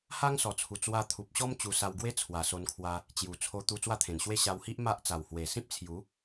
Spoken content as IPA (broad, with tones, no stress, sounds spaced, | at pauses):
h a˦ ŋ s ɔ˨˩ t͡sʰ u˨˩ t͡s w a˧ t̪ʰ u˨ p̚ ɕ ɔ˦ m t͡ɕ u˧ s a˧ w ɡ w e˦ t͡sʰ w a˨˩ s o˧ n kʰ w a˧ | t͡ɕ j u˨˩ t͡sʰ o˧ t̪ u˧ t͡s w a˥˧ t̪ʰ ẽ˨˩ n ɕ w e˦ ɕ a˧ w h i˦ ʔ m a˦ ʔ t͡s a˨˩ w h w e˨˩ s ĩ˦ p̚ t͡sʰ j u˨˦